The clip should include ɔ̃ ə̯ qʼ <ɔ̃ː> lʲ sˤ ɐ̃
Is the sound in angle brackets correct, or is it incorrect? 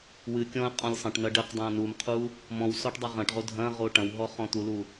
incorrect